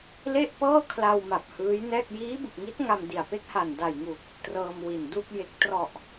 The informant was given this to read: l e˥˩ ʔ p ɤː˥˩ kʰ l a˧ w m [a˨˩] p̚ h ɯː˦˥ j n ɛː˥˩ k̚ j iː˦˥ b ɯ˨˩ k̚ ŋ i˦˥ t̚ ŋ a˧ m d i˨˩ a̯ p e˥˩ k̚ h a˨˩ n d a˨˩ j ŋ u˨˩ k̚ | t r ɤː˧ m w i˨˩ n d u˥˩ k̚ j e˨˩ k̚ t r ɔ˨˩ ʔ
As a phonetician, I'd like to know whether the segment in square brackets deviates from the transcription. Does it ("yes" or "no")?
no